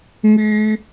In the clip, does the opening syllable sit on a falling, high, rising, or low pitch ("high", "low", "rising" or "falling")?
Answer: high